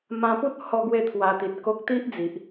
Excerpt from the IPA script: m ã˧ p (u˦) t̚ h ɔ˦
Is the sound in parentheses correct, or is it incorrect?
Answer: correct